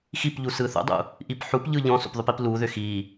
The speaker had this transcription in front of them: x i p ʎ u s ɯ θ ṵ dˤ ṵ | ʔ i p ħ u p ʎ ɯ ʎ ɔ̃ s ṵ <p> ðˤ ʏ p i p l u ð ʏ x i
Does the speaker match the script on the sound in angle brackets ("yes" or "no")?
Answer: yes